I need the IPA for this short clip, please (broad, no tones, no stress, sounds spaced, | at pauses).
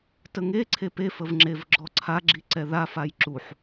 t ə ŋ e ǀʰ e p e f ə v ŋ͡ǁ e v ɡ͡ǁ ɔ ǀʰ a ɡ͡ǁ i ǀ ɛ ð a f a j ǁ u ħ